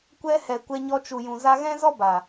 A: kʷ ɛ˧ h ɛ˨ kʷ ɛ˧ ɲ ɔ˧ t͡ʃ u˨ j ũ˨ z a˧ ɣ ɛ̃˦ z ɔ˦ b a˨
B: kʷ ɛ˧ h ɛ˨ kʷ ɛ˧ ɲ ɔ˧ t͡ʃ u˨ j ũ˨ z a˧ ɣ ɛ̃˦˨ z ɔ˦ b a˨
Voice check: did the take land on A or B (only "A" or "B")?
A